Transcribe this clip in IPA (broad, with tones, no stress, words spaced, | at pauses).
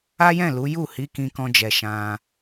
a˦jɛ̃˦˨lu˨˦ju˦˨ hi˨˦kĩ˧kɔ̃˧d͡ʒɛ˨ ʃã˧